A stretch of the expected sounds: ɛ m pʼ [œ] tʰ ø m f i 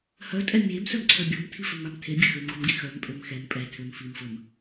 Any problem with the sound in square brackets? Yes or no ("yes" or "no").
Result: yes